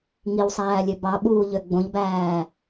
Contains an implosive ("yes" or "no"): yes